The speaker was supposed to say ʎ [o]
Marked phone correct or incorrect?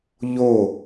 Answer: correct